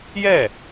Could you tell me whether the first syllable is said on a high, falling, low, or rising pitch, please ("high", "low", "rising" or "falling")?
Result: falling